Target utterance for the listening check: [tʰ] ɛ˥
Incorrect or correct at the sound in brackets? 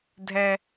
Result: incorrect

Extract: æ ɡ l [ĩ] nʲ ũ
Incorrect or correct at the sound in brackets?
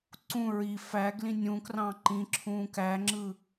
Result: correct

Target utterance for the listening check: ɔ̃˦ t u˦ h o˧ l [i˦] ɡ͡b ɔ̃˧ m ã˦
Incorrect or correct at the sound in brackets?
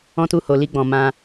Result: correct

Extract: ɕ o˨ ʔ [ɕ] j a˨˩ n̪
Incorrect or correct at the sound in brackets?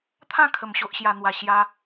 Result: correct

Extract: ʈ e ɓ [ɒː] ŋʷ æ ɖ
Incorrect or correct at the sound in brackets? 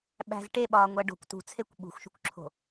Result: correct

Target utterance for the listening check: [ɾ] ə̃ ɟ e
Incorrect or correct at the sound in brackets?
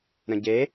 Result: correct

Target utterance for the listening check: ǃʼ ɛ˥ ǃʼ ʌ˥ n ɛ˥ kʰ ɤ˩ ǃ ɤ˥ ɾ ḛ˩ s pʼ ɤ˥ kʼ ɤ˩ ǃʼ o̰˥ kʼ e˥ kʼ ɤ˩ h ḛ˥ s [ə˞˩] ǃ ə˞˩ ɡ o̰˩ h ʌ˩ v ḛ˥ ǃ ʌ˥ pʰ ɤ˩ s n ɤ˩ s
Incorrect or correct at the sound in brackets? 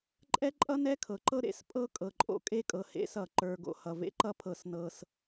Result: incorrect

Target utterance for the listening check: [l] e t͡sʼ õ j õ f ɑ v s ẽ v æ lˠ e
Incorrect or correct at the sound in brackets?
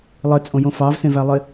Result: incorrect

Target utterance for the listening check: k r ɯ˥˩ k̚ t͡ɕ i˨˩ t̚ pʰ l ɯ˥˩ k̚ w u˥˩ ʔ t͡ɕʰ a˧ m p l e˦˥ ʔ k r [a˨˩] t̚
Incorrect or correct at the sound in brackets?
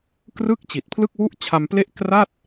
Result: incorrect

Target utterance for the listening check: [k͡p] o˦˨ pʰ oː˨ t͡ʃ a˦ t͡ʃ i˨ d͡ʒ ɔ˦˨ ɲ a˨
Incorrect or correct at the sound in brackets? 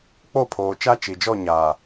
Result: correct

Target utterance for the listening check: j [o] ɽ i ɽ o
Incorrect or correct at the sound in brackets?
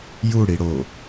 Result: incorrect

